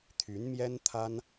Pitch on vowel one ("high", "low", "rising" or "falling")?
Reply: rising